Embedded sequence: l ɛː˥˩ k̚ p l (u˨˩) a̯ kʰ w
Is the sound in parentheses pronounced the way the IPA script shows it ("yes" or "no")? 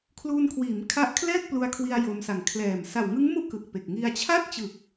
no